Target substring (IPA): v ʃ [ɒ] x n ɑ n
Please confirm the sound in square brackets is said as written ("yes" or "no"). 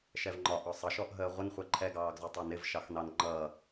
no